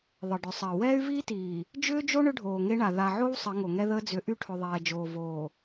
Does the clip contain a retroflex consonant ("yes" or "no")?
yes